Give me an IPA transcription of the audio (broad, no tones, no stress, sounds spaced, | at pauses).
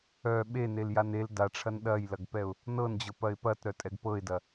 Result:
œ ɓ e n e l j a n e l d a ʈ͡ʂʰ ɐ n ɗ ɐ j l ɐ ɡ p ɛ ʊ̯ | n ɤ n d͡ʑ ɤ p ɐ ɪ̯ p ɐ t ɾ œ tʼ ɛ ɡ p ɤ ɪ̯ d ɐ